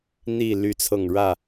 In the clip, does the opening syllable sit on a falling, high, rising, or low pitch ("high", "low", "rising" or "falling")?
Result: falling